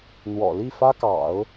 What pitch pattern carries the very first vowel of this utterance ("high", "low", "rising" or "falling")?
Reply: low